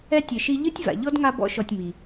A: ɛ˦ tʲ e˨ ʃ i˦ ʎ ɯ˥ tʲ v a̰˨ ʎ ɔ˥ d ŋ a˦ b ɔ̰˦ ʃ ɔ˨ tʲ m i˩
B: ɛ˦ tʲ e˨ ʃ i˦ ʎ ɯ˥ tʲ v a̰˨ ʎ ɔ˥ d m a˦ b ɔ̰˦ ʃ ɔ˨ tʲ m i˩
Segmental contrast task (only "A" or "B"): A